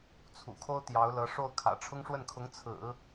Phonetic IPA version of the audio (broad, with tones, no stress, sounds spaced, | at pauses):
t͡sʰ ṵ˨˩ kʰ o˥ ʊ̯ t̪ j ɑ˧˥ ʊ̯ l ɤ˧˥ ʂ o˥˩ ʊ̯ kʰ ä̰˨˩ ʈ͡ʂʰ ʊ˥ ŋ ʂ w ə˥˩ n kʰ ʊ˧˥ ŋ t͡sʰ ɹ̩˨˩˦